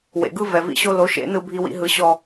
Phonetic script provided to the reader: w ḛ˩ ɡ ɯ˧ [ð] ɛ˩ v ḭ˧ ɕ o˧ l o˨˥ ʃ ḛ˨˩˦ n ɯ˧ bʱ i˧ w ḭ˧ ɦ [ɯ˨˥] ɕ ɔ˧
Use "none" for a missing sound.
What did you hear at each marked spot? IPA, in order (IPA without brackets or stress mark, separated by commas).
v, ɯ˨˥